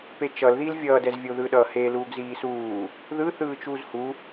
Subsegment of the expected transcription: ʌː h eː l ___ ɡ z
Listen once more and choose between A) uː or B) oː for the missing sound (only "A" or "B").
A